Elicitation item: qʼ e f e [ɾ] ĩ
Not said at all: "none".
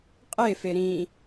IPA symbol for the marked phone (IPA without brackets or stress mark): ɾ